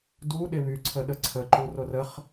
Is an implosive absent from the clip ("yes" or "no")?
no